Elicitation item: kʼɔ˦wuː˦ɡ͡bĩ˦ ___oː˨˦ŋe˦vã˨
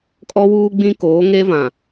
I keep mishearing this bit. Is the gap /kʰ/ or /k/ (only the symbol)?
k